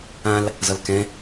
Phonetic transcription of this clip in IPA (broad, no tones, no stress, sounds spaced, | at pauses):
ã l | z ʌ l k ɛ̃